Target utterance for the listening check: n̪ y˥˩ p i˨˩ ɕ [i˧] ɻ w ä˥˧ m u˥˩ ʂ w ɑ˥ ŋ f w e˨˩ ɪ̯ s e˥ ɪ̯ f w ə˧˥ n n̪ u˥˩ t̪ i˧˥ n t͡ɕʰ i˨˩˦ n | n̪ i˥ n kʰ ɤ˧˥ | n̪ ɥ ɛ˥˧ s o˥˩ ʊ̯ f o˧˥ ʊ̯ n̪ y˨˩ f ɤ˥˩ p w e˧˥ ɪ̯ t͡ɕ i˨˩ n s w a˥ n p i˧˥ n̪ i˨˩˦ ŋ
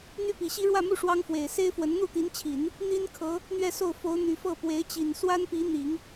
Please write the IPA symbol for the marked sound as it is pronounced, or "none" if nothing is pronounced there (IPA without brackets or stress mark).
i˥